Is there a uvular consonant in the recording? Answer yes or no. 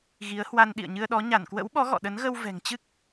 no